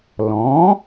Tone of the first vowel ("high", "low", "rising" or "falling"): rising